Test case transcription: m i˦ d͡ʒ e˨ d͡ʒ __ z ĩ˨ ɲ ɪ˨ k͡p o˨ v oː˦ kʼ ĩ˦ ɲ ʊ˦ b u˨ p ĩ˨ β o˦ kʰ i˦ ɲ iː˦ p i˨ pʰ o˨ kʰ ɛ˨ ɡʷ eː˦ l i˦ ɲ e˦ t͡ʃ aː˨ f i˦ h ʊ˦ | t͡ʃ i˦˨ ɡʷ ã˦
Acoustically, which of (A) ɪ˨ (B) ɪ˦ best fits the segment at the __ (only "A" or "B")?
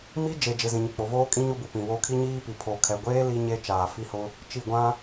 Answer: A